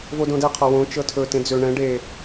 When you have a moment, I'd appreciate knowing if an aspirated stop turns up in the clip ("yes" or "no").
yes